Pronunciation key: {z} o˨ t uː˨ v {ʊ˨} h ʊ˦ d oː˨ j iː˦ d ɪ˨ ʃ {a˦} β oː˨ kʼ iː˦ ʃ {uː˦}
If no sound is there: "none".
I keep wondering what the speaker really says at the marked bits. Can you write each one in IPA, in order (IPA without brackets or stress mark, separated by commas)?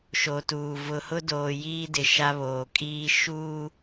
ʃ, ʊ˨, a˦, uː˦